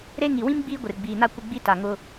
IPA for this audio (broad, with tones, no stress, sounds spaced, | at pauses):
ɾ e˦ ŋ i˨ w ĩ˦ m ɡ͡b iː˦ ɡʷ ɪ˨ r ɡ͡b iː˨ n a˦ kʷ ɪ˦ ɡ͡b i˦ t a˨ ŋ ʊ˦